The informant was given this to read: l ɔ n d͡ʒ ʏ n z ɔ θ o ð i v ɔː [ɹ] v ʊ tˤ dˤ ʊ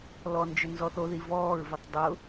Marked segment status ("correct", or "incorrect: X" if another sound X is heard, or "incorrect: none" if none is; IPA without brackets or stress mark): correct